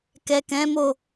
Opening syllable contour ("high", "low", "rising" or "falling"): low